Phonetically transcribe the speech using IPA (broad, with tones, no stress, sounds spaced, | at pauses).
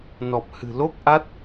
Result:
n ɔ˨˩ p̚ h ɨ̤˨˩ l o˦˥ k̚ ʔ a˦˥ t̚